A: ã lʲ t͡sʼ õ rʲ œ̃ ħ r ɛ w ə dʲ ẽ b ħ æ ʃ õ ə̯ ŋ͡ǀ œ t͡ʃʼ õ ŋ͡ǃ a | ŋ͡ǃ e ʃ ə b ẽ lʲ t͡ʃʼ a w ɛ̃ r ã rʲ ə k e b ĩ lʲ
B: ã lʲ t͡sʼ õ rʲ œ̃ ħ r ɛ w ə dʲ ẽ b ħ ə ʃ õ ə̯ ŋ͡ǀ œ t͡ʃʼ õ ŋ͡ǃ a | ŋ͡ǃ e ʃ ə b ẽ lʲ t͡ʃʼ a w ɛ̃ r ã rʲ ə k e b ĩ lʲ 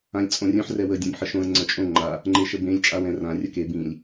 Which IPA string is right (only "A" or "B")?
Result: B